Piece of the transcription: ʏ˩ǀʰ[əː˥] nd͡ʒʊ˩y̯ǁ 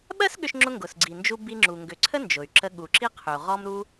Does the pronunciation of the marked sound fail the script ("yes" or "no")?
yes